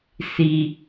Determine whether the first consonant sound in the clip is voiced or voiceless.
voiceless